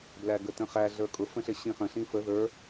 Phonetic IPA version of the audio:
b l æ ɡ ə t ə̃ χ æ ɮ ə˞ kʼ ʊ f ə̃ ɬ ɪ ɕ ĩ χ ə̃ ɬ ĩ f ə ð ə˞

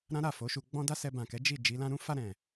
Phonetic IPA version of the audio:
ɾ ã˦ ɾ a˦˨ f o˨˦ ʃ u˧ ɡ͡b ɔ̃˦ d a˦ s ɛ˧ b ã˨ k ɛ˨˦ d͡ʒ i˦˨ d͡ʒ i˨˦ l ã˧ ɾ ũ˦ f a˧ ɾ ɛ̃˨

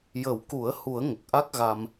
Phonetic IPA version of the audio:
j ə˨˩˦ w k u˨˩˦ ə̯ h u˨˩˦ ə̯ ŋ ə˨˩ k̚ ʔ a˦˥ k̚ ɣ a˧ m

